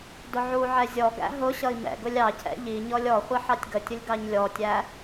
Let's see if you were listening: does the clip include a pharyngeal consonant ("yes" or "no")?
yes